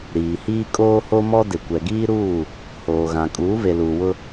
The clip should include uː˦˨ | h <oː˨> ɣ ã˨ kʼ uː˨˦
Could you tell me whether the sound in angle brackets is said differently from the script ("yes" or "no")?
no